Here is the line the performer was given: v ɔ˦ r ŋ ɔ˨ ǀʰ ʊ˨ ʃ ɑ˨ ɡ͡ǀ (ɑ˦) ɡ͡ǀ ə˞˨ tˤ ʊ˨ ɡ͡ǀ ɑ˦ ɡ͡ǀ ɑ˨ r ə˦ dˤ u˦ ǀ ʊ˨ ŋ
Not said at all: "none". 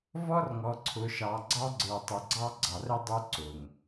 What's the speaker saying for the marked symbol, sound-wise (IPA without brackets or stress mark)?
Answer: ɑ˦